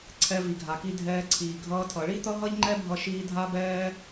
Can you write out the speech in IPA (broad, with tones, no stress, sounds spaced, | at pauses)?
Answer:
ǀʰ ɛ˧ v i˨ ɡʱ a˨ k i˧ dʱ ɛː˧ ǀʰ iː˨ ɡʱ ʌː˦ tʰ ʌ˧ ɭ i˦ t̪ ʌ˦ ɦ ʌ˦ ʎ ŋ͡ǃ ɛ˦ bʱ ʌ˦ ʃ iː˦ dʱ a˦ b ɛː˦